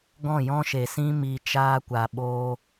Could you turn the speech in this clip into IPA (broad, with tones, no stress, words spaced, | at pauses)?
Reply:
ɡɔ̃˦˨jɔ̃˦ʃe˨sĩ˦ mi˧t͡ʃaː˦kʷa˨ ɓoː˧